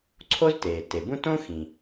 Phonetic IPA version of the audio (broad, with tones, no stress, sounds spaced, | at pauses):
ǀʰ o˥ z t eː˩ t e˩ b ũ˥ t õ˥ x ĩ˩